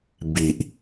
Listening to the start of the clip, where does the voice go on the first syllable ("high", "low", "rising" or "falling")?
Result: low